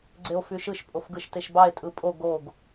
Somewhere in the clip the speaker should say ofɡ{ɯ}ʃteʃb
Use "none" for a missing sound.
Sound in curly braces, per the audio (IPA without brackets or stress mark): ɯ